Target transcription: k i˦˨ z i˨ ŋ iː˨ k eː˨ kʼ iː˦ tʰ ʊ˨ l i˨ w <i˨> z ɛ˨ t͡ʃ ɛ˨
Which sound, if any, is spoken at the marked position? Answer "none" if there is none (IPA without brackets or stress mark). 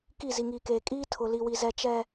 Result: i˨